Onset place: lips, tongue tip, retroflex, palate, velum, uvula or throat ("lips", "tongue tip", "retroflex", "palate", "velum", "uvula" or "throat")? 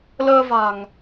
tongue tip